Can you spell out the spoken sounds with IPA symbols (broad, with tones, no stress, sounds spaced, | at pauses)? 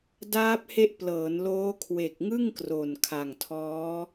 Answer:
d aː˦˥ p̚ h e˦˥ ʔ p l ɤː˩˦ n l oː˦˥ kʰ w e˨˩ k̚ ŋ ɯ˥˩ ŋ k r o˨˩ n kʰ a˨˩ ŋ tʰ ɔː˦˥